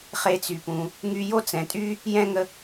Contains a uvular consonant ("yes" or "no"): yes